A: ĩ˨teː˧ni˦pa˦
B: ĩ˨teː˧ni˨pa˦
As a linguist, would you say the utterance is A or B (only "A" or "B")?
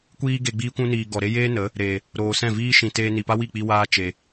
B